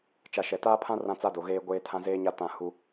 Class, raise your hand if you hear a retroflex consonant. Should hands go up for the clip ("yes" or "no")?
no